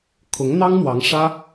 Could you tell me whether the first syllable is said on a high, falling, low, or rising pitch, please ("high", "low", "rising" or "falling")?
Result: rising